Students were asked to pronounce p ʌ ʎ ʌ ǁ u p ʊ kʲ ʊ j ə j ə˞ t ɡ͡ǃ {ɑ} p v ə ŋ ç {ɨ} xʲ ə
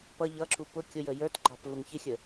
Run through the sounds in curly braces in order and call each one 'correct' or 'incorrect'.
correct, incorrect: ɪ

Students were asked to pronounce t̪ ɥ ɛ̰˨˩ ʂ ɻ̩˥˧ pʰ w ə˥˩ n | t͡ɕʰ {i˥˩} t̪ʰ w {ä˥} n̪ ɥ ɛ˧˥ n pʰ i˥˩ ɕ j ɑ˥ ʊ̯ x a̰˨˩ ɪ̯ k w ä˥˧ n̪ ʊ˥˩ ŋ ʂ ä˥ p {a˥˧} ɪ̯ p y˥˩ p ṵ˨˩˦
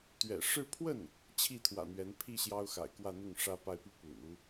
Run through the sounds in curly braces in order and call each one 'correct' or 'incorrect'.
correct, incorrect: ä̰˨˩, correct

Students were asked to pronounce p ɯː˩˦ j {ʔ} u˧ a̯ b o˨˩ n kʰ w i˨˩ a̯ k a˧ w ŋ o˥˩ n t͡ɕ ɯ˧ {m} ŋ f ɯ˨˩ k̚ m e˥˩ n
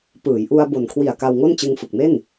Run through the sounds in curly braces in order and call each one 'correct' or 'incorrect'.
correct, incorrect: none

